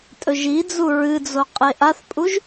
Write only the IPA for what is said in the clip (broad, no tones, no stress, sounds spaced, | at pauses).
tʼ ɵ ʒ i d͡z u ɹ ɨ d͡z o qʼ e ʔ a θ pʼ u ʒ